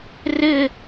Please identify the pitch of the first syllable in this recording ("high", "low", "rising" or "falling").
falling